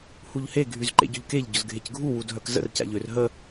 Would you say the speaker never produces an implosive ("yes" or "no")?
yes